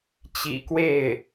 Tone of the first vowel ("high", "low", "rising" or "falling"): low